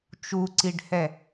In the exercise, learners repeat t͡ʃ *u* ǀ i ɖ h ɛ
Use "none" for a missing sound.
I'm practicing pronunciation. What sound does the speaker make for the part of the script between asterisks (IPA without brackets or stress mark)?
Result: u